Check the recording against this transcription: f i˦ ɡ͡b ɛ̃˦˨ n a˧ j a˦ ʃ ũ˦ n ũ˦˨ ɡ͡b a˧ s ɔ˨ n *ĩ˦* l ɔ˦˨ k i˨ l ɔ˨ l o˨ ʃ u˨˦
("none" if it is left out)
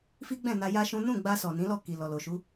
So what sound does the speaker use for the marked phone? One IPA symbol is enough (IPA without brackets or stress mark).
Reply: ĩ˨˦